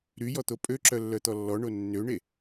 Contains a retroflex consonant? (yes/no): yes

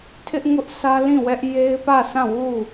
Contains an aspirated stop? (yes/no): yes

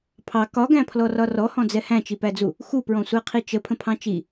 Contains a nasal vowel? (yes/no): yes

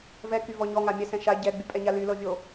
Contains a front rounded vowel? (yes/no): yes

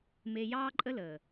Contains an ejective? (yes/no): yes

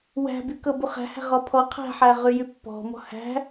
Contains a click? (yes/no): no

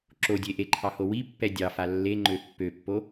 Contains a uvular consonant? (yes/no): no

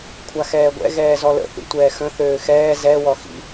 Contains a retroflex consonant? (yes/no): no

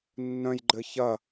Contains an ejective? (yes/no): no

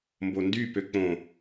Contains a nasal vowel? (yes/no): yes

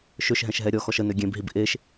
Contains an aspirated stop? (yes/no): no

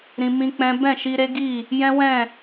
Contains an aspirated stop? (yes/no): no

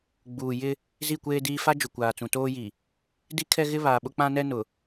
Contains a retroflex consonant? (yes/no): no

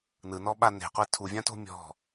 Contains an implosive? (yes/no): yes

